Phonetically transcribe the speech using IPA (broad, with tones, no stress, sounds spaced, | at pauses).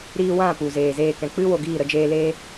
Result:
ɾ iː˧ w ã˦˨ p u˨ z eː˨ z eː˦˨ k ɛ̃˧ k͡p ɨ˦ w o˨ ɡ iː˦˨ ɾ ə˧ d͡ʒ eː˧ l eː˦